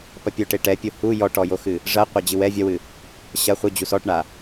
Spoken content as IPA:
pɐpʲoʈe ʈɛpʲo hu jɔʈɔjoxɨ | ʐɐqʷɐ d͡ʑɨwɛ vʲɐwɨ | ɕɐ χʷɨ d͡ʑusɔʈɳa

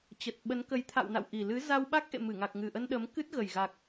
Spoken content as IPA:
t͡ɕə˨˩t̚ɓə˨˦nkə˨˦j t̪ʰa̰˧˨wna̰˧˨wʔi˨˩ lɨ˨˦za˧w ɓa˦˥k̚ʔḛ˧˨mɨ˧˩ ŋa˨˩k̚ŋɨ˨˩ʔə˧n ɗə˨˦mkɨ˦˥t̚ɣə˨˩jɣa˨˩k̚

